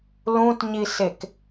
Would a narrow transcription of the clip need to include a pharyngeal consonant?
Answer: no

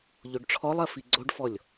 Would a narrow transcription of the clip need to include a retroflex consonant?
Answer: yes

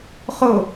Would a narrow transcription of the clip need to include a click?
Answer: no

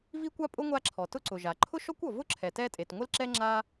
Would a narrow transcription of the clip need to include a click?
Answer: yes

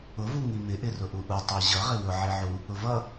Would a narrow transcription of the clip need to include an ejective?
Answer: no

